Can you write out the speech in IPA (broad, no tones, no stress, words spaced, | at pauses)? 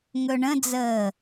ŋɵɳə̃d͡zəː